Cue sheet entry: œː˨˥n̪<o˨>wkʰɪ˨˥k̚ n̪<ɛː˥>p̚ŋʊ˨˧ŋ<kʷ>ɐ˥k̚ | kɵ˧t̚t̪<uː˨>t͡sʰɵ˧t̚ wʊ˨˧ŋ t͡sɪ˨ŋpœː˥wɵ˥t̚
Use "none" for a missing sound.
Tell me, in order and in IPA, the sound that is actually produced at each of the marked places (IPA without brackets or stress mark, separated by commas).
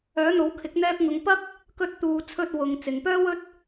o˨˥, ɛː˧, p, uː˨